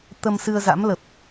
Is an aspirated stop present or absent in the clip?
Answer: absent